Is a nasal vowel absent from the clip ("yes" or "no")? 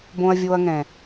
no